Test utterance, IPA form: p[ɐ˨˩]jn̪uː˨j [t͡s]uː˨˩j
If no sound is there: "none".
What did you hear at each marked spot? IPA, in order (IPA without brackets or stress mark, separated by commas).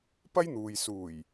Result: ɐ˥, s